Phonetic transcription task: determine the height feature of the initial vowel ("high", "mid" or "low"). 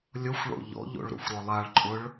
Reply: mid